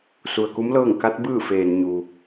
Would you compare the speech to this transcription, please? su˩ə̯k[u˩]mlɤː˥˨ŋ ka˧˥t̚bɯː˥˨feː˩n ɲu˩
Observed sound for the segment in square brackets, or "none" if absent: u˧˥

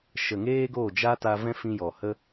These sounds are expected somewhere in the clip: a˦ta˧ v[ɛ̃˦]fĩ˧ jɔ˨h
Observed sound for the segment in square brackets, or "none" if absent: ɛ̃˦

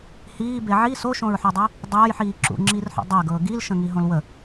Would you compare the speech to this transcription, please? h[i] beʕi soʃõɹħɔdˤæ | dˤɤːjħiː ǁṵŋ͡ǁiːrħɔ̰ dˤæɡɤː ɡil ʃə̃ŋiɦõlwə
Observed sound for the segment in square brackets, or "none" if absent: iː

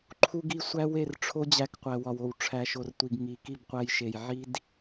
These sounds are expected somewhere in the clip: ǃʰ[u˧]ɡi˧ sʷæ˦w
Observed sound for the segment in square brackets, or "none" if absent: u˧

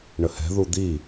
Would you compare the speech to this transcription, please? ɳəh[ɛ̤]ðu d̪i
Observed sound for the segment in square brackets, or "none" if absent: ɛ̤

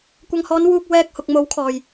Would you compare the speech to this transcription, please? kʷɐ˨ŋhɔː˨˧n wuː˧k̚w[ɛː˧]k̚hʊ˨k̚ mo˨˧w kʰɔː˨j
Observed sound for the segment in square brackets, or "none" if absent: ɛː˧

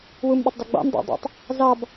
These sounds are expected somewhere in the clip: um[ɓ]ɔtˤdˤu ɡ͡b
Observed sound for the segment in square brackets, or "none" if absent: ɓ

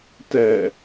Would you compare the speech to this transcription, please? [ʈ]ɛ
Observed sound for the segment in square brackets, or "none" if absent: t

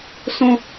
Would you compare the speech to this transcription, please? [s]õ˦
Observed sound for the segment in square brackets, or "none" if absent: s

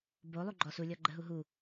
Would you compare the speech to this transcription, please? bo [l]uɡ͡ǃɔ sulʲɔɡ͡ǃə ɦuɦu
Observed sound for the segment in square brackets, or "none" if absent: lˠ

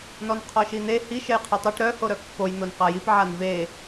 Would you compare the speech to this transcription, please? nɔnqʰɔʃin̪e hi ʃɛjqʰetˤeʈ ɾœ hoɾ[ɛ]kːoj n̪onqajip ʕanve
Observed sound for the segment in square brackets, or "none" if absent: œ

